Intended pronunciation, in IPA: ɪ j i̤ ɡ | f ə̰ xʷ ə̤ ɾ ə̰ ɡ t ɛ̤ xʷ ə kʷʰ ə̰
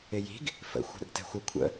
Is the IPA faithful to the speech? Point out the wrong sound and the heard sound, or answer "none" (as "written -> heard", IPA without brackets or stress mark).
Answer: none